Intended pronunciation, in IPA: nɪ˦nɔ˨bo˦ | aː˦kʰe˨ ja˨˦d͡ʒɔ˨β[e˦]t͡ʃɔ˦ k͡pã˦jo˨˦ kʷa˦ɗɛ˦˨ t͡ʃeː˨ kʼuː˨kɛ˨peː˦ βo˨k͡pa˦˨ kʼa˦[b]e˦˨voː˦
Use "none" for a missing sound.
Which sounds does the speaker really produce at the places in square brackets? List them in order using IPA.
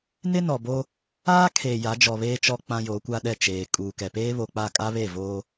eː˦, β

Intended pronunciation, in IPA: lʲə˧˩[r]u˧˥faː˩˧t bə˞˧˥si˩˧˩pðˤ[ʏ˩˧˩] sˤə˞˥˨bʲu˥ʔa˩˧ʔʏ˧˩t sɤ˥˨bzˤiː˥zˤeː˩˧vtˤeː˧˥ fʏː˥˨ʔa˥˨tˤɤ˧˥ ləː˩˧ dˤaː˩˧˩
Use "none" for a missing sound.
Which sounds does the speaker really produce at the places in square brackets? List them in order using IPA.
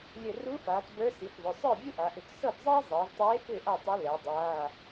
r, ʏ˩˧˩

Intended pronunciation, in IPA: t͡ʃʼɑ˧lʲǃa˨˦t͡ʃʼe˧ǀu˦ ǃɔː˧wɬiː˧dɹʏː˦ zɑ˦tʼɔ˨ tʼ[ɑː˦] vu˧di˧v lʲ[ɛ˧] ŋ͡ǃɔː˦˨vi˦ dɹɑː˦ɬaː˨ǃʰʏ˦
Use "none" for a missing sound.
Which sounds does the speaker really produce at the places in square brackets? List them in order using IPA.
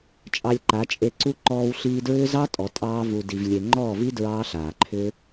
ɑː˦, e˧

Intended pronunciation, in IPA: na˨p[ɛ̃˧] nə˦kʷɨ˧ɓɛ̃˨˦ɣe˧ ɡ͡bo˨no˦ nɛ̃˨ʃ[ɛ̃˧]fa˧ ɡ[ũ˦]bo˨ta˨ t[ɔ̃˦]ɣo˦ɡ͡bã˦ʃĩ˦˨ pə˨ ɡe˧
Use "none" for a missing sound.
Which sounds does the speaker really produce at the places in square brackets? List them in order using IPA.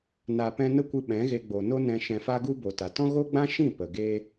ɛ̃˧, ɛ̃˨, u˦, ɔ̃˦

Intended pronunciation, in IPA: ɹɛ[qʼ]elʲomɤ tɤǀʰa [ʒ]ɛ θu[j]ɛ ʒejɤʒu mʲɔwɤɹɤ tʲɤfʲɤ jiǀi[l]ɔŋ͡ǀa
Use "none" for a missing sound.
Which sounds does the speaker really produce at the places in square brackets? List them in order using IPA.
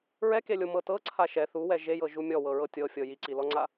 k, ʃ, w, l

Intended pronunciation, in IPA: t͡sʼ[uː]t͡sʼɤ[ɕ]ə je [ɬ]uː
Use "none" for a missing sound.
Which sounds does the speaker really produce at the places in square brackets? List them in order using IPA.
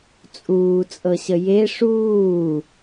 uː, ɕ, ʂ

